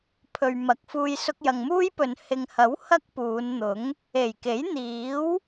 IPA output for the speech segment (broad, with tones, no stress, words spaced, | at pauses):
pʰɵ˨ɥmɐ˨k̚fuː˧j sʊ˧k̚jɐ˨ŋmuː˥jpɵ˨n hɪ˨ŋhɐ˨˥w hɐ˥k̚puː˨˧nn̪ʊ˨˥ŋ | e˨˩jke˨˥jn̪iː˨˥w